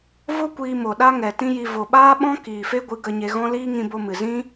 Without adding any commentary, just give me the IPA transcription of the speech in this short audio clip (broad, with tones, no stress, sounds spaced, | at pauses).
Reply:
v o˦ kʷ iː˧ m o˨ ɗ a˦ ŋ ɛ˨ t ĩ˦ j i˧ v o˨ ɓ aː˦ ɓ ɔ̃˦ k iː˨ f e˦ ɡʷ ɨ˨˦ ɡ ə˧ ɲ e˧ ɣ ɔ̃˦ l iː˦ ŋ ĩ˧ b o˧ m ɨ˨ z ĩ˦